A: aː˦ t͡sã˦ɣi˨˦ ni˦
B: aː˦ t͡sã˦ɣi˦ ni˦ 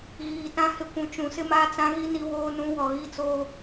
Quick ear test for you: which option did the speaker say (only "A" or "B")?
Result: B